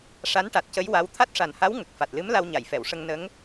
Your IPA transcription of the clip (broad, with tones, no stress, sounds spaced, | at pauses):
ʂ a˧˥ n ʈ a˨˩ t̚ c ə˧˥ j w a˧˥ w t̪ʰ a˦˥ t̚ ʂ a˨˩ n h a˧˥ w ŋ ə˨˩ k̚ f a˨˩ t̚ l ɨ˧˥ m l a˧ w ɲ a˨˩˨ j f ɛ˨˩˨ w ʂ ə˧ ŋ n ə˧˥ ŋ